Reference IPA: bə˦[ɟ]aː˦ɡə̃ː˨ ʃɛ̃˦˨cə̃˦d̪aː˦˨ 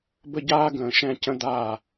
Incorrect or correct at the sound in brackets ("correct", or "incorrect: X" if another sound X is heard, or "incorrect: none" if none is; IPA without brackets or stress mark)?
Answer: correct